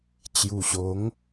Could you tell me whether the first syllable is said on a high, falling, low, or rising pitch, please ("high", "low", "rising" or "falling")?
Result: low